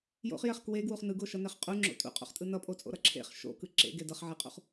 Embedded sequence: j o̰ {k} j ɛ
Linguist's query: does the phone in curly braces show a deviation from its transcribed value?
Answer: yes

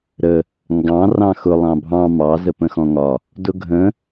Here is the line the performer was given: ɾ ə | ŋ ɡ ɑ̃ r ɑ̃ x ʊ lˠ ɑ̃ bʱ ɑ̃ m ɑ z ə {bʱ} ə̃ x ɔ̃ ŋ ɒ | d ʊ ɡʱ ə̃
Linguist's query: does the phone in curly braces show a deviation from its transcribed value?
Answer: yes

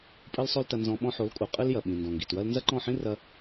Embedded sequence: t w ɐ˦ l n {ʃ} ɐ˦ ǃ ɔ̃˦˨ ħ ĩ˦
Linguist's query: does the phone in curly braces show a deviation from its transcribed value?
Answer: yes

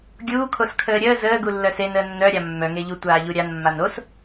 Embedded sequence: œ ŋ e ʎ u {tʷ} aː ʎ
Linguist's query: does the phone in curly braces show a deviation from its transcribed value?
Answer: no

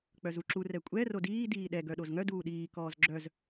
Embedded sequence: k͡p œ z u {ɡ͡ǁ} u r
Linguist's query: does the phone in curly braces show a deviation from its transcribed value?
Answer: yes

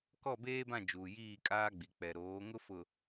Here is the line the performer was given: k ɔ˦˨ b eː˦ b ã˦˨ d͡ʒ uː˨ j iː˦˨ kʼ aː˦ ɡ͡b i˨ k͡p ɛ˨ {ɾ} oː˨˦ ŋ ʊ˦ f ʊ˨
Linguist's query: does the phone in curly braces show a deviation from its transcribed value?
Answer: no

